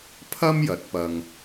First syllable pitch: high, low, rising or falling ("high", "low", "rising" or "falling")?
high